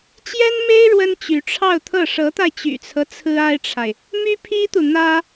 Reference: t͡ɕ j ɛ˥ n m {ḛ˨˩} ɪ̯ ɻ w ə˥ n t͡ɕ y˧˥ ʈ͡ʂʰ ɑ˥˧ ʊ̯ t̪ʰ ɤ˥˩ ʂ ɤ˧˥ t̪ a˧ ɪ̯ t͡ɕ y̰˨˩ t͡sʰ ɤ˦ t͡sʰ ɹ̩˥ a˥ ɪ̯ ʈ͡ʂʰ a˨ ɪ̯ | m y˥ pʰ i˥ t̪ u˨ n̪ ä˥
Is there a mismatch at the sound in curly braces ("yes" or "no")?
yes